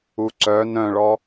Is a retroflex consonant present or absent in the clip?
present